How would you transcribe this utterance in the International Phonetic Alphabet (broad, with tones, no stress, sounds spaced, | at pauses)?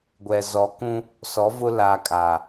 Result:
ɡʷ ɛ˨ z ɔ˨˦ k ũ˦ | s ɔ˨˦ v ʊ˦ l aː˨ kʼ aː˨